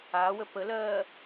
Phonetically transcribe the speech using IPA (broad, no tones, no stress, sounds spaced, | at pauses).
aː w ə p ə l ɜː